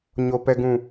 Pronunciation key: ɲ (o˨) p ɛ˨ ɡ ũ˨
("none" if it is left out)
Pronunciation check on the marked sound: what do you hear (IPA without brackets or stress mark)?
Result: o˨